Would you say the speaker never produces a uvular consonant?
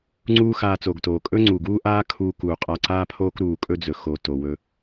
no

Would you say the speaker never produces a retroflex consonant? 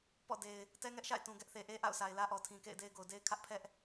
yes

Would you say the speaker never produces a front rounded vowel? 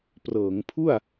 yes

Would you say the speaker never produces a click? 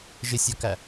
yes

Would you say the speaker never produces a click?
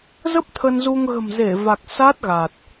yes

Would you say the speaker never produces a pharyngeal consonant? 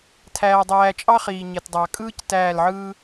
no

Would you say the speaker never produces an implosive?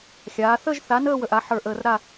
yes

